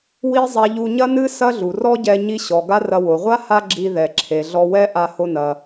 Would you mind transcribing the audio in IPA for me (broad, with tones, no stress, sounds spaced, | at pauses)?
w i˥ zˤ a˧ ʎ u˧ ɲ ɐ˥ n ɨ˥ s ɐ˥ ɮ u˩ r ɔ˥ ɟ ɛ˧ ɲ i˧ ɕ ɔ˩ ɡ a˥ r ɐ˧ w o˩ ʁʷ a˥ h a˥ ɡ͡ǁ i˧ ð ɛ˩ ǁʰ e˩ ɮ ɔ˧ w ɛ˥ ʔ a˧ h o˧ n ɐ˩